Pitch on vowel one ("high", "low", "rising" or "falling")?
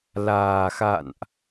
low